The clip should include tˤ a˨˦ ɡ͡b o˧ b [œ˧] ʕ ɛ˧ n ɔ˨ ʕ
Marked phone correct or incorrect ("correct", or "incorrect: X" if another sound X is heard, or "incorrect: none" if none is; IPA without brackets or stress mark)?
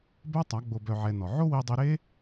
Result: correct